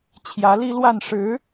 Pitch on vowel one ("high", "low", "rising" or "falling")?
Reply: rising